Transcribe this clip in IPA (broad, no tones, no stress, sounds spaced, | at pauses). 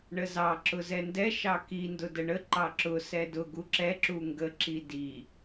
ɳ ə z ɑ ǁ ʊ z ɛ n d ɛ ʃ ɑ k i n d ʊ d ə ɳ ə ǃ ɑ ǁ ʊ s ɛ d ʊ ɡ u ǁ ɛ ǁ u ŋ ɡ ə ǁ i d i